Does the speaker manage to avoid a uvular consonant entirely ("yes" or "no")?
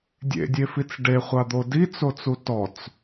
no